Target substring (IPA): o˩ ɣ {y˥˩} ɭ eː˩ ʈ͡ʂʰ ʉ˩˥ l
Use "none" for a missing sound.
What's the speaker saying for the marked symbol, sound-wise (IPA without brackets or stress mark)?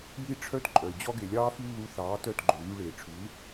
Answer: y˧